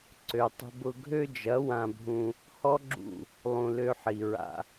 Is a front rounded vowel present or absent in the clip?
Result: present